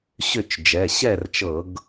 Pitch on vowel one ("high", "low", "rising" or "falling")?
falling